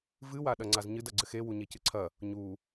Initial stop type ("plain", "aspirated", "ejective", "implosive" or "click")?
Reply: implosive